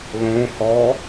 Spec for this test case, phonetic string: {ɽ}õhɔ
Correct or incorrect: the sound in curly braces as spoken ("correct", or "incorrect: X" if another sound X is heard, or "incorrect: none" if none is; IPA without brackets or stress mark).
incorrect: l